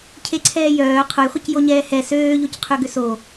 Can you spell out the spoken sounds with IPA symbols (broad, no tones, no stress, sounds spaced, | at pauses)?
cʰ e ǀʰ ɛː j œː qʰ ʊ j χʷ ɐ c j o ɲ ɛː h ɛ s øː ʎ o c qʰ ø ɡ ʏ s o